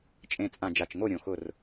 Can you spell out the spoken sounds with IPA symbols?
t͡ʃʼ ẽ˨˩ t͡sʼ ã˨˩ d͡ʒ a˨˩ t͡ʃ ŋ o˦˨ ɾʲ õ˨˩ x ʊ˦˨ r

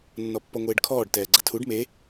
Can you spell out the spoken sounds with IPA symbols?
nː ɔ pː ɔ ŋʷ eː ɖ kʰ ɔː ɖ t ɛː ɡ͡ǀ ɐ tʰ u ɖ m e

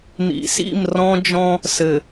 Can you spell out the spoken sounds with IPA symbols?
n̪ ḭ˨ s ḭ˦˨ m r ɔ̃˦ d͡ʒ ɔ̃˦ | s ɘ˨

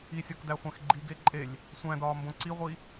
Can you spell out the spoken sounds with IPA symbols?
i sʲ ɒ k d æ χʷ æ̃ x ɡ͡ǃ i ɡ e ǃʼ e lʲ | sʷ æ̃ d ɒː m b õ ǀ i ʁʷ i

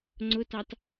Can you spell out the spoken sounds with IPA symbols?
ŋ͡ǀ ʊ t ɑ t

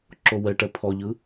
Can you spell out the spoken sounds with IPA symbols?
ǁ o w ɛ ʈ ɛ pʰ ɔ ʎ ɯ

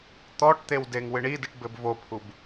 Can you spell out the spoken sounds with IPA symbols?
t̪ ɔ ʈ t̪ e w d e ŋ w ɨ ɳ i d ɨ ʈ b ɘ b v o pʰ u b

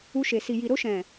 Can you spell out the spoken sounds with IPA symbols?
u˧ ʃ e˨ s i˨ j i˨ ɾ o˧ ʃ ɛ̃˨

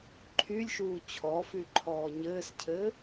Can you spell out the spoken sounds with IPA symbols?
ǃʰ y lʲ ʃ uː t͡ɕʰ ɔ f y ǃʰ ɔː ɲ ɘː s cʰ ɘ

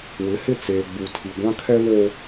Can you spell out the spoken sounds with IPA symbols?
w ɪ˨˦ h ɪ˦˨ t͡s eː˨ ɡ͡b u˨ tʰ i˨ ɡʷ ã˦ kʰ ɛ˦ β oː˦

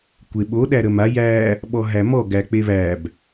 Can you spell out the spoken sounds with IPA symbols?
kʷ e ɓ o ɗ æ ɾ ə m a j æ | ɓ ɔ ɦ æ m ɔ ɡ æ k͡p e β æ b

